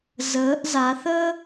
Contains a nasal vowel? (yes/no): no